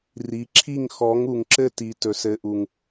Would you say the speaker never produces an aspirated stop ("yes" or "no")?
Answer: no